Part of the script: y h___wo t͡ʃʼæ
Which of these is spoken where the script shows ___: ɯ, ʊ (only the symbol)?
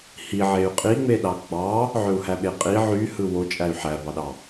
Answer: ɯ